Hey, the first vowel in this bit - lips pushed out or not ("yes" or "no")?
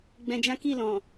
no